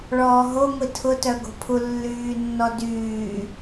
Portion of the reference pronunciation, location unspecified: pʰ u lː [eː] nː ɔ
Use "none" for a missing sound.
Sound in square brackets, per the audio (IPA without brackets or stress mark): yː